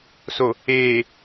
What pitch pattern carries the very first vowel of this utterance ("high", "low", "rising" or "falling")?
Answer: low